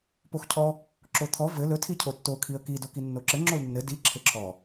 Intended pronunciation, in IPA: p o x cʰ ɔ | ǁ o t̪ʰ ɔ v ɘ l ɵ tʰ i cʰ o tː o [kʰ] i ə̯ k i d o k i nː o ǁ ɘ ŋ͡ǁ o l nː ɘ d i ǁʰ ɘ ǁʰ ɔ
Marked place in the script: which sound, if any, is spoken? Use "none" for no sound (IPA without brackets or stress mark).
kʰ